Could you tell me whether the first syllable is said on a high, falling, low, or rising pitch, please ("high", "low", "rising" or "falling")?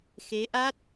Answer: rising